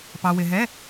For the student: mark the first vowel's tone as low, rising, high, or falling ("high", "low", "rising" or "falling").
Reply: low